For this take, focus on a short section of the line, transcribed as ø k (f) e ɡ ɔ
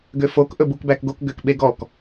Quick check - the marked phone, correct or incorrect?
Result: incorrect: ɓ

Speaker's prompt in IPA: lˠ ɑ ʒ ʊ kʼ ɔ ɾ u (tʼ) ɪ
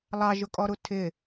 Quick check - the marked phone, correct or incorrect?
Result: incorrect: tʰ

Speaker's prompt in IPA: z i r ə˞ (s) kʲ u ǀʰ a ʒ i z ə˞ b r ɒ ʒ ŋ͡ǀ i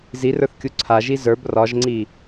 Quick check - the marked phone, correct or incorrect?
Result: incorrect: θ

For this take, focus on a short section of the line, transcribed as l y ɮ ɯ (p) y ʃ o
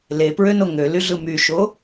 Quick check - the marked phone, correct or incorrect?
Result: incorrect: m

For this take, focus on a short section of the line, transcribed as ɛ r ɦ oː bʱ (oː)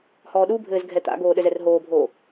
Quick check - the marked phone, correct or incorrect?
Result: correct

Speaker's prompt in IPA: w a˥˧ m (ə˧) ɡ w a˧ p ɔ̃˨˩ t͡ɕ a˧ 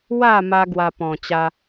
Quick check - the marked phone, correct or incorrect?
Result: incorrect: a˧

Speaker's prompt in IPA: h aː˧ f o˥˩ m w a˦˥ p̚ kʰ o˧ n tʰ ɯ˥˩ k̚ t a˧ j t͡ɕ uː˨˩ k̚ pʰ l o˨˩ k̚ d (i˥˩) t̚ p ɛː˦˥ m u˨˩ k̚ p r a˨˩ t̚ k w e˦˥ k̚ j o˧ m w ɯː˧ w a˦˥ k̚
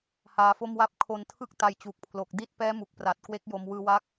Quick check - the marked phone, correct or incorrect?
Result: correct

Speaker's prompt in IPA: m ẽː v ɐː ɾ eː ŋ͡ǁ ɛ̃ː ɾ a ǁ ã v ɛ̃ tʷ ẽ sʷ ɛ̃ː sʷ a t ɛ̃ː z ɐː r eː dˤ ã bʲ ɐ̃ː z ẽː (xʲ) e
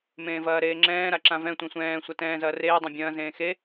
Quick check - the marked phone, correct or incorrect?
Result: incorrect: x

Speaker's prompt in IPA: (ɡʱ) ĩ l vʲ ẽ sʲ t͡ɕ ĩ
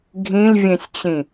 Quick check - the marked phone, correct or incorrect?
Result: correct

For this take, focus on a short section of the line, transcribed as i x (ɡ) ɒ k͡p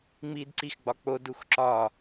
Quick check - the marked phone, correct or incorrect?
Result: incorrect: ɡ͡b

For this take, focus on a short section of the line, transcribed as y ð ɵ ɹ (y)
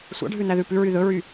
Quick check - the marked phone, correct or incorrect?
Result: correct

